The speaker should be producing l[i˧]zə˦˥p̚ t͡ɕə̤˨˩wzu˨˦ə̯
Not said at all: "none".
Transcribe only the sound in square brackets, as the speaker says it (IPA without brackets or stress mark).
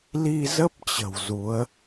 i˧